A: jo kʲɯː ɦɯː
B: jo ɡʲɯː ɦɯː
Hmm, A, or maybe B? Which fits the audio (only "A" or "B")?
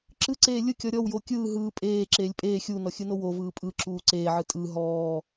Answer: A